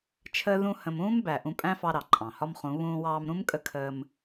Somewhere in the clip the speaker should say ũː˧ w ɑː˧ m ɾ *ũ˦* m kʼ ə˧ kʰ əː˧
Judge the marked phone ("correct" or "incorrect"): correct